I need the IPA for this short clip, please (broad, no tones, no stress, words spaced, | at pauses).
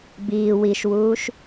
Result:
biː wiʃwuːʃ